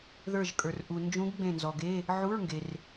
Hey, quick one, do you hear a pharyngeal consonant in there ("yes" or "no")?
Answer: yes